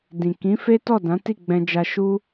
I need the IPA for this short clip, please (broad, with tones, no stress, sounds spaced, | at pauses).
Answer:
d ĩ˨ k ĩ˨˦ f e˦ t ɔ˦˨ d ã˨˦ t i˦˨ ɡ͡b ɛ̃˧ d͡ʒ a˧ ʃ u˦